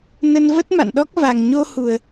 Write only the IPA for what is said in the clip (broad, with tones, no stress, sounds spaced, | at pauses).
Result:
n ə˧ n v ə˦˥ t̚ m a̰˧˨ n ɗ ɔ˦˥ k̚ v a˨˩ ŋ ɲ o˧ h u˨˩ ə̯